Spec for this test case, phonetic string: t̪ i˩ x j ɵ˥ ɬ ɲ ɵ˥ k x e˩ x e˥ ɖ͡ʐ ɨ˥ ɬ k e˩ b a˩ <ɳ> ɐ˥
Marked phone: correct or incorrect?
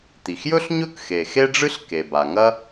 incorrect